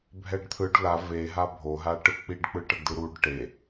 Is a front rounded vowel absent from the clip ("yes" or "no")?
yes